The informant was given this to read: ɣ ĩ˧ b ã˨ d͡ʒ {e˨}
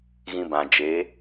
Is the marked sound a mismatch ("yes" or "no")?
yes